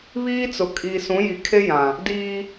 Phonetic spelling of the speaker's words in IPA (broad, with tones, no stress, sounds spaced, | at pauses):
β iː˦ t͡s ʊ˨ kʼ i˨ s ũ˨˦ j i˨ kʰ e˦ j ã˨ | d iː˦